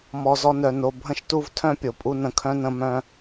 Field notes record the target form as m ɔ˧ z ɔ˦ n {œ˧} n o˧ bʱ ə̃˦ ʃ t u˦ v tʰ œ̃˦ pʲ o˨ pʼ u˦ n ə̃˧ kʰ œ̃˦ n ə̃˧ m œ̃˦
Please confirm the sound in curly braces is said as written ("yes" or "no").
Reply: yes